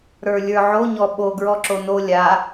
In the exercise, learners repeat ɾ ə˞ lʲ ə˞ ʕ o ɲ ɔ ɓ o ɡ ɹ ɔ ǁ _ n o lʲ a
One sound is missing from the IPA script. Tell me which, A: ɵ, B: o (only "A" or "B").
B